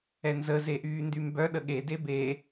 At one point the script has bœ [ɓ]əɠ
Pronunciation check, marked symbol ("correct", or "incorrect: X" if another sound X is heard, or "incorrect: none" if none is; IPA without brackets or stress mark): incorrect: ɗ